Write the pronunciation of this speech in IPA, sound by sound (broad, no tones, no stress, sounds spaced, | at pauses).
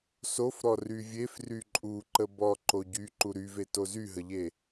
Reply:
s o f ɾ ɔ r y vʲ e f r y ǃʼ u ǃ ə b ɔ ǃ o ɟ y ǃ u ɾ y v e t o z y ɦ ə ʎ e